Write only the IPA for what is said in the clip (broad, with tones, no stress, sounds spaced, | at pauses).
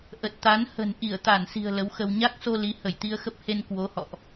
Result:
ʔ ə˨˩ t̚ t̪ a˨˦ n h ə̤˨˩ n ʔ i˧˩ ə̯ t̪ a˧˩ n s i̤˨˩ ə̯ l ə˨˦ w x ə˧ w ɲ a˦˥ k̚ s o˧ l i˨˦ h ə˧˩ j t̪ i˧ ə̯ x ə˦˥ p̚ h e˧ n k w o˨˦ h ɔ̰˧˨ ʔ